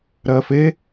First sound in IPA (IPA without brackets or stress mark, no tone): ɾ